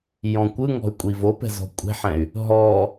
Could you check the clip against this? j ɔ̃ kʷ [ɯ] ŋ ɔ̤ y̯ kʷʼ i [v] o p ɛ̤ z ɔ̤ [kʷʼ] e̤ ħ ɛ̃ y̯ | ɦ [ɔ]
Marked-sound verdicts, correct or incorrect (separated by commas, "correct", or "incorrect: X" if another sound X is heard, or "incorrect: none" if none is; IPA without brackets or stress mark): correct, correct, correct, correct